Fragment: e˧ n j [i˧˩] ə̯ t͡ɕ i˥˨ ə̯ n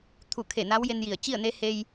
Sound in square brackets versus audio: correct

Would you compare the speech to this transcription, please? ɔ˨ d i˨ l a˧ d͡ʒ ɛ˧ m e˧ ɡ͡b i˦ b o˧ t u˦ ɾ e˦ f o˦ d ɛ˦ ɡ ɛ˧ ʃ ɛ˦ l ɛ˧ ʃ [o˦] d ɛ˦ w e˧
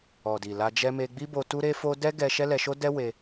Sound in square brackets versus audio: correct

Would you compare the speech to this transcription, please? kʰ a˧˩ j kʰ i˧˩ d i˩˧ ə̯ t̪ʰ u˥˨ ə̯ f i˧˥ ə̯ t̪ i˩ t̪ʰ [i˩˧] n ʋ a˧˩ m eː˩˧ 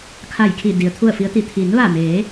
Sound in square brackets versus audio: correct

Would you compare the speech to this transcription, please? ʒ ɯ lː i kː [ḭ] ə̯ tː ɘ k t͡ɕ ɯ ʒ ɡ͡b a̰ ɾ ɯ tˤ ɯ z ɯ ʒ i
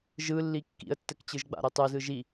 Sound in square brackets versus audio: correct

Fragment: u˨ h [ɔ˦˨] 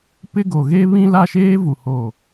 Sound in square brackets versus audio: incorrect: o˦˨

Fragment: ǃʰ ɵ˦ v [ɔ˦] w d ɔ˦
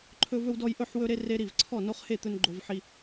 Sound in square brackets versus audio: incorrect: ɵ˦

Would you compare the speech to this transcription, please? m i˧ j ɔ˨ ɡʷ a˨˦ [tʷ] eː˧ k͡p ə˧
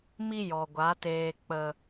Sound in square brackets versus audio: incorrect: t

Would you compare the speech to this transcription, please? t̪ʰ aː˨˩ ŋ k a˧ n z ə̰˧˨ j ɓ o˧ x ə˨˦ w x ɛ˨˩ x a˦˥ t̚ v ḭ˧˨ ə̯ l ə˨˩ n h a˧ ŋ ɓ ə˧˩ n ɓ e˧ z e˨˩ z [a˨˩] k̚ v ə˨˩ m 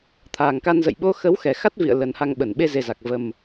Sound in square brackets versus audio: correct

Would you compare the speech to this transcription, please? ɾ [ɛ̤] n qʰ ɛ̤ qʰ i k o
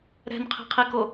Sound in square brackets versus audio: correct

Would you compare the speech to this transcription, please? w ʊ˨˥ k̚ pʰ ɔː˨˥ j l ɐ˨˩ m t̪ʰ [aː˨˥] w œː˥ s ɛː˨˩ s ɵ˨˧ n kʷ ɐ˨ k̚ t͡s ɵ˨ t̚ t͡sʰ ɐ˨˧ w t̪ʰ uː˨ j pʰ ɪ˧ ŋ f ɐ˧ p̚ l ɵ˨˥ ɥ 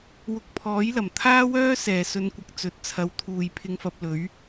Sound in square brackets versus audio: incorrect: aː˥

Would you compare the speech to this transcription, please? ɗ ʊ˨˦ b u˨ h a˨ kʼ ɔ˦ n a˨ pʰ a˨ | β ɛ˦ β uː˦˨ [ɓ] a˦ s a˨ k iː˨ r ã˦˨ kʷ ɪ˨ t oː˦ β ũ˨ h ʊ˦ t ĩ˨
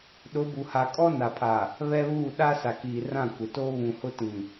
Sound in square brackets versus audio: incorrect: ɗ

